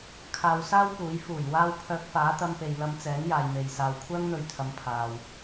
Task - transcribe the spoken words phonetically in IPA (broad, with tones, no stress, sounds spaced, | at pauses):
kʰ aː˧ w s aː˥ w p uː˨˥ j f uː˨˩ j w aː˧ w pʰ œː˧ k̚ f aː˨˥ t̪ ɐ˧ m p e˨ j l ɐ˧ m t͡s ɛː˨˥ ŋ j aː˨ j m e˨ j s aː˨ w kʷʰ œː˥ ŋ n̪ ɵ˧ ɥ t̪ʰ ɐ˨˧ m pʰ aː˨ w